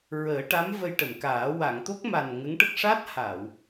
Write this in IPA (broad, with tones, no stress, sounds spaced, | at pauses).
ɹ əː˨˩˦ ʈ a˧˥ m v ə˧ j ʈ ə˨˩˨ m k aː˨˩˦ w a˨˩˨ ŋ t̪ o˦˥ k̚ m a˨˩ n ŋ ə˧˥ ŋ ʈ ə˦˥ k̚ ʂ a˦˥ t̚ h a˨˩˨ w